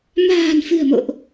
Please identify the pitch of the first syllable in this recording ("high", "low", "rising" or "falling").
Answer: low